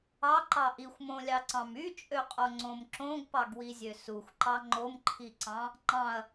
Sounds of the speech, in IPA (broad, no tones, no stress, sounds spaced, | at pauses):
ɑ ǃ ɑ ʔ i xʷ m õ lʲ ɑ ǀ ɑ̃ m y t͡ʃʼ ø qʼ o ŋ͡ǀ õ m ǁ õ ɡ p ɑ ɡ w i zʲ ø s u xʷ ǃ ɑ ŋ͡ǃ o m ǃʰ i ǀ ɑ̃ | ŋ͡ǃ ɑ̃ ɐ̯